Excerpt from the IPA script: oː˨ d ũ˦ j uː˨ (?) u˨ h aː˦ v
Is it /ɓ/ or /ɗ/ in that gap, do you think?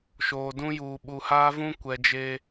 ɓ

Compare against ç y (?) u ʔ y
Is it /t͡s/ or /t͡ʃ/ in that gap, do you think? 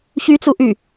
t͡s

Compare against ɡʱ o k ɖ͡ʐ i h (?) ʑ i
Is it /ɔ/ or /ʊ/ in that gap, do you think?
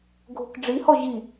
ɔ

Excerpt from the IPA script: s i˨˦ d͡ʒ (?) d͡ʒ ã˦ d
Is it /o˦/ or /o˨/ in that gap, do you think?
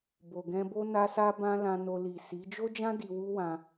o˦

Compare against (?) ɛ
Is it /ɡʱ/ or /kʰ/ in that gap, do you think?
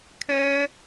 kʰ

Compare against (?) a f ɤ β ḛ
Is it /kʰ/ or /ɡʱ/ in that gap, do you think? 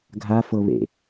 ɡʱ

